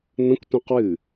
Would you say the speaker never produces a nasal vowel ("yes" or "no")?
no